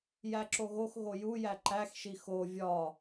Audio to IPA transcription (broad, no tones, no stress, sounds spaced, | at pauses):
j æ ǁ o ɣ o x ɣ o j u j æ ǃ æ x ʃ i x o vʲ ɒ